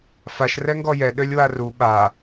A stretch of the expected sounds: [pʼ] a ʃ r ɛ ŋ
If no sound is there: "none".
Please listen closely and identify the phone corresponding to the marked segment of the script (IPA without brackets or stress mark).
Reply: f